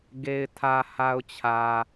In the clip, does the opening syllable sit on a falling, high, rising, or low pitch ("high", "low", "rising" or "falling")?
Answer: low